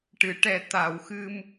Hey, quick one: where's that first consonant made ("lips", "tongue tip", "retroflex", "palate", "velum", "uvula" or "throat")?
retroflex